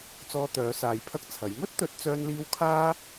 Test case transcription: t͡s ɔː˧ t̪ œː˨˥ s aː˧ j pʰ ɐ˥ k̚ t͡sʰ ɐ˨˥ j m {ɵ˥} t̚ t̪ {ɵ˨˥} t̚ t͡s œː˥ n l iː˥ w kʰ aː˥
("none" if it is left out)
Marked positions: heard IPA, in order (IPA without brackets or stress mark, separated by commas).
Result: ɵ˥, ɵ˨˥